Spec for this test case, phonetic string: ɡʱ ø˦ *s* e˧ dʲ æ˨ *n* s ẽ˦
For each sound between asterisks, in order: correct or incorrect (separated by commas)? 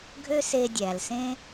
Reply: correct, incorrect